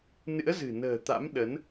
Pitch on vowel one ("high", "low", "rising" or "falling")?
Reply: rising